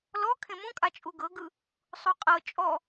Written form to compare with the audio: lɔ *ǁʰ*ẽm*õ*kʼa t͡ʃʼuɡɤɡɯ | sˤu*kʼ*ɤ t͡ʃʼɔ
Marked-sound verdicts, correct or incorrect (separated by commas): incorrect, incorrect, incorrect